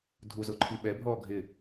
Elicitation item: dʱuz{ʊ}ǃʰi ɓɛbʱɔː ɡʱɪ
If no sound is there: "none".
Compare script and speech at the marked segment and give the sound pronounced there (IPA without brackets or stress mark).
ʊ